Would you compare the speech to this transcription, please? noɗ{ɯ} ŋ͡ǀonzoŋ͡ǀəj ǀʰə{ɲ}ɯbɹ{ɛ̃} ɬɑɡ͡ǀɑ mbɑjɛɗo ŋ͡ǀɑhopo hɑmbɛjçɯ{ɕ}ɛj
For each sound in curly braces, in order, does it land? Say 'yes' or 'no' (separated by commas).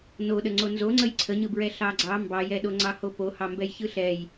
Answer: no, yes, no, no